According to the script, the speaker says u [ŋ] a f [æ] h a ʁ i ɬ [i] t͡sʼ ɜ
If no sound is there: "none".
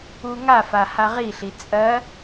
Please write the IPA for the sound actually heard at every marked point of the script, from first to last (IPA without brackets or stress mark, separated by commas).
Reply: ŋ, a, i